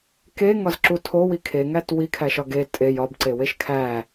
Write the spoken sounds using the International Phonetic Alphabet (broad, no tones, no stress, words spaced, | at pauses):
keŋɒzǁu tʰowi kʰeŋæt wikʰæʃɒ ɡe tʼej ɒbǀeweʃ kʰæ